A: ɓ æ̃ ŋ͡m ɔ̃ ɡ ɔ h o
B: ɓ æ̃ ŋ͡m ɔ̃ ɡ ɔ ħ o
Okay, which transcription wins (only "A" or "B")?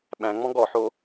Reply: B